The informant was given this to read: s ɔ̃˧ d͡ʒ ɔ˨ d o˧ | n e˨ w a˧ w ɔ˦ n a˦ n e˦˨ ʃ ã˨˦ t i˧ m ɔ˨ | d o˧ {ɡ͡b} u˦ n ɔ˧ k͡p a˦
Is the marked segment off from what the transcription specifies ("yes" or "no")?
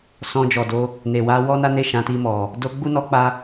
no